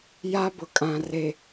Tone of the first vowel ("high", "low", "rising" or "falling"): high